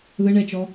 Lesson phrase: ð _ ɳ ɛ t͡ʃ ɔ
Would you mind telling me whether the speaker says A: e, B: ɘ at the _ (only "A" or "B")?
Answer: B